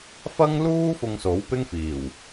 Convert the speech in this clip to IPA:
f ɐ˥ ŋ l uː˥ f ʊ˧ ŋ s o˨˥ w p ɪ˥ ŋ f iː˨˩ w

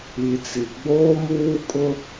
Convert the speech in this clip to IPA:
i˨ t͡s i˨ ɡ͡b oː˦ m uː˦ kʼ ʊ˦

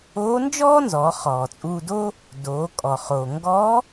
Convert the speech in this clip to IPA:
oː˧˥ n d͡ʒ ɔː˥ n z ɔː˩˧ χ ɔː˩ t͡sʼ uː˧ d oː˥ | d oː˩˧ kʼ ɔ˩ χ oː˩ ŋ ɡ ɔː˧˥

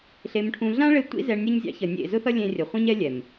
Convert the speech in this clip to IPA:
ɬ e˨ m ʈʰ ũ˨ ɮ ã˦ ɭ e˧ tʷ ḭ˦ z ɛ˧ ɳ nʲ ʌ˦ ɲ zʲ ɑ̰˦ ç ʌ˨ nʲ ḛ˦˨ z ʊ˦ θ ʌ˦ lʲ ẽ˦ rʲ ʌ˨ χʷ ĩ˦ ɲ ɛ˦ lʲ ɛ˨ m

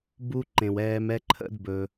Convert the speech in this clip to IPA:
b u˦ ǃ ẽ˨ w ɛː˧ m ɛ˦ ǃʰ ə̰˦ d b ɵ˧

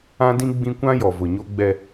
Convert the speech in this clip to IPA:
ã˦ d ĩ˦ ɡ͡b ĩ˦ kʷ ã˦ j ɔ˨ v ʊ˨ ɲ o˦ ɡ͡b ɛ˦

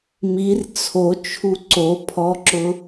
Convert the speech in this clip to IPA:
m i r t͡sʰ o t͡ʃʰ u ǀ o pʰ ɔ ǁ ʊ

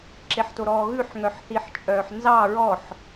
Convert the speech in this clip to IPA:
ǁ e ħ t o ɾ ɔː ɣ ʉ ħ ŋ œ ħ θ i ħ t͡ʃʼ œː ħ n z ɑ ɹ ɔ ħ

